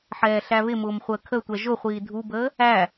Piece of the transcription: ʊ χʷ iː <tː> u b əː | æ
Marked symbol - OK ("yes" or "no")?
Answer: no